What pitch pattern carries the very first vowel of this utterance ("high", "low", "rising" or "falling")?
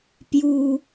low